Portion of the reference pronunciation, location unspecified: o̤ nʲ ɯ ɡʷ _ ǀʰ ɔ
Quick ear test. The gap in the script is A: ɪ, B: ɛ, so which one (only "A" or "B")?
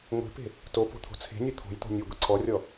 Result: A